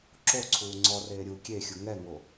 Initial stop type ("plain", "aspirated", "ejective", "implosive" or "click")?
click